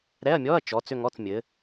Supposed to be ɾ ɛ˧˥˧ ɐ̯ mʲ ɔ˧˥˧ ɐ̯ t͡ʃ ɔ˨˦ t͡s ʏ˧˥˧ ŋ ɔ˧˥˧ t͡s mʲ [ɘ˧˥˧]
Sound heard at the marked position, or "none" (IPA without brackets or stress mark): ɘ˨˦